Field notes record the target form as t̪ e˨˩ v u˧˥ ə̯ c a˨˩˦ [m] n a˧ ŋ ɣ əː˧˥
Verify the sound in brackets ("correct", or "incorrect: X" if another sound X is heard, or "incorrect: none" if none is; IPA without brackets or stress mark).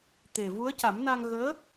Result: correct